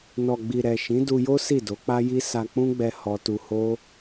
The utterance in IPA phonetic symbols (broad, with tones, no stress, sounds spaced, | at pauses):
n ɔ˨ ɡ͡b i˨ ɾ ɛ˨ ʃ ĩ˨˦ d u˧ j o˦ s i˦˨ d o˨˦ k͡p a˦ j i˦ s a˧ k͡p ũ˦ ɡ͡b ɛ˧ h ɔ˧ t u˧ h o˦